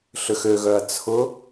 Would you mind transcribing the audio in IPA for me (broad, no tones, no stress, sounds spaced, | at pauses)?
ɬ ʏ x ø ɣ œ ɐ̯ t͡sʰ ʊ